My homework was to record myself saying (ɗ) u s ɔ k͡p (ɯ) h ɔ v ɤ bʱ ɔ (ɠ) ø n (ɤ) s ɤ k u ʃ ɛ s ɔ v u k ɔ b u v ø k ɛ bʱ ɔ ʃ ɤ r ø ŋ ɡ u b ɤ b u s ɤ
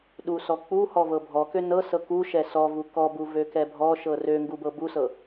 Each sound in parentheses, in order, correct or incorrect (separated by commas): correct, incorrect, incorrect, correct